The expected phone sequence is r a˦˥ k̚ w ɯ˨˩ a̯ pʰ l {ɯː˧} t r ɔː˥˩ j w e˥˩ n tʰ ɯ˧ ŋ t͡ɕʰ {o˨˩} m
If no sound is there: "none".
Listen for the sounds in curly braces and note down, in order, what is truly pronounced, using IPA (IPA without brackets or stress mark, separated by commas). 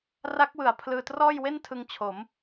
ɯː˧, o˩˦